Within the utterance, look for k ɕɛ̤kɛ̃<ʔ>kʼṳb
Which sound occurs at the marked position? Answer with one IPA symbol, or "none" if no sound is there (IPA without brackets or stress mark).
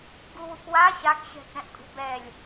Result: ʔ